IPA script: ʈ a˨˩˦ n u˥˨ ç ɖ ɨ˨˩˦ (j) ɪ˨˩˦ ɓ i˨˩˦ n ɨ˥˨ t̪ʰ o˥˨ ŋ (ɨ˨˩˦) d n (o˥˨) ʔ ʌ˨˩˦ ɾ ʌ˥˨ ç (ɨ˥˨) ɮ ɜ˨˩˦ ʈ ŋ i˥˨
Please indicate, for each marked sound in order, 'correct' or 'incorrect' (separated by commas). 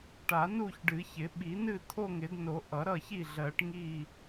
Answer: incorrect, incorrect, incorrect, incorrect